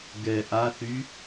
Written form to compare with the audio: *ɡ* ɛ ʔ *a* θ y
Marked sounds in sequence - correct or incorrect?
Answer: correct, correct

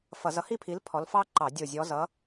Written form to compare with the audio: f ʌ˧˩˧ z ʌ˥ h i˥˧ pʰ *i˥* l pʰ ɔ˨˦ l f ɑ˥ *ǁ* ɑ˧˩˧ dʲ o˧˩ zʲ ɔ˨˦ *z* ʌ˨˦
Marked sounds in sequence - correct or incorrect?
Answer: incorrect, incorrect, correct

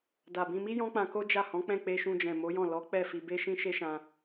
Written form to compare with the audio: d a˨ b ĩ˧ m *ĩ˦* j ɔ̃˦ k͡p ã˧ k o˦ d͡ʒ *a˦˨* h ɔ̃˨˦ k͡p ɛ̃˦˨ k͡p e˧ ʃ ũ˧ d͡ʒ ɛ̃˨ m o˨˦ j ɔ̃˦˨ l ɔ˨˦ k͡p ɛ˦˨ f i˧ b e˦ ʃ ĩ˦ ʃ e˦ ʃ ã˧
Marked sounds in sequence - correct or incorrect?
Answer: incorrect, correct

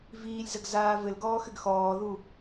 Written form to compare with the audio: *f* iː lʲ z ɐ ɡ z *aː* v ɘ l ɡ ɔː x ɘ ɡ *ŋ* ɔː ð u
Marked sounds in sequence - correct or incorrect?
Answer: incorrect, correct, incorrect

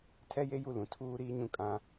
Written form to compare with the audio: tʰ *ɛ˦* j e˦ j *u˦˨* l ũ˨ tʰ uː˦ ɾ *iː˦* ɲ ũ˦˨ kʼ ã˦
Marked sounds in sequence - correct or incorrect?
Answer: correct, correct, correct

